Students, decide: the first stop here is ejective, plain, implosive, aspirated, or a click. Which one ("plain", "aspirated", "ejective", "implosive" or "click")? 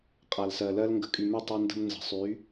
ejective